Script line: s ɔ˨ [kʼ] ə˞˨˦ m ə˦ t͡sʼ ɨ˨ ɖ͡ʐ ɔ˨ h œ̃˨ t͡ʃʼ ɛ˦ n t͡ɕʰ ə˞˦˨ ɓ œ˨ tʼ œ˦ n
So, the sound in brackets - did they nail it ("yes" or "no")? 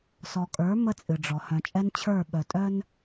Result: yes